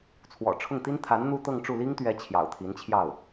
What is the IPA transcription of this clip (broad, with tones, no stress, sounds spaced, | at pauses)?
t͡sʰ w ɔ̰˨˩ ʈ͡ʂʰ ʊ˥˩ ŋ t̪ i˥ n t̪ʰ a˧˥ n n̪ u˥ t̪ ɤ˥˧ ŋ ʈ͡ʂ u˥˩ l i˥ ŋ t̪ ɥ ɛ˧˥ t͡ɕʰ j ɑ̰˨˩ ʊ̯ t̪ʰ i˧˥ n t͡ɕʰ j ɑ˥˩ ʊ̯